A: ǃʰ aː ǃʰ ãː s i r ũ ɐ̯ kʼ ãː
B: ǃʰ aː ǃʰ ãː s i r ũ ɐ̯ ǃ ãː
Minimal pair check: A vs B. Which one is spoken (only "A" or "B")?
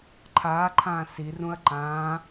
B